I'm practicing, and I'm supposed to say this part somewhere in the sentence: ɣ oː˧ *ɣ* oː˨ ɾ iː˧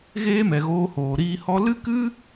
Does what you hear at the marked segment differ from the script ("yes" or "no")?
yes